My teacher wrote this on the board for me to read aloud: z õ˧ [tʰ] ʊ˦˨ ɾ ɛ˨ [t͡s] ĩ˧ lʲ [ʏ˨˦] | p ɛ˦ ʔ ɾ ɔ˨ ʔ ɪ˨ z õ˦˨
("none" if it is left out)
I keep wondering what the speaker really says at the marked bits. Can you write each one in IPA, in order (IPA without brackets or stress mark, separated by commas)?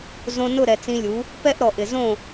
n, t͡s, u˨˦